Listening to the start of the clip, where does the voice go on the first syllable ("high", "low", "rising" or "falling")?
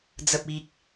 low